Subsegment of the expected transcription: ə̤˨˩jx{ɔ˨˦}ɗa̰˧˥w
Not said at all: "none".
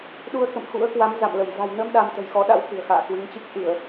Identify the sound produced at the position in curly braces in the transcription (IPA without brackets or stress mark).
ɔ˨˦